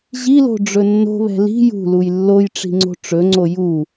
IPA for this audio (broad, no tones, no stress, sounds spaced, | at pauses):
ʑ i l o̤ ɖ͡ʐ ɵ nː o̤ β ɛ̤ l i̤ j ṳ l u j lː o j ʈ͡ʂ i̤ ŋ͡ǀ o̤ ʈ͡ʂ ɵ ŋ͡ǀ o j u